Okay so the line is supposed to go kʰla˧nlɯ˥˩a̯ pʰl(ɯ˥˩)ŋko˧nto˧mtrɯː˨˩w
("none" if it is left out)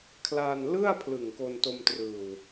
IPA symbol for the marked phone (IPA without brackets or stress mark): ɯ˨˩